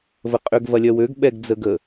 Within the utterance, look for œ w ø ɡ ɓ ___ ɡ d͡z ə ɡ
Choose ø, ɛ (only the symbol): ɛ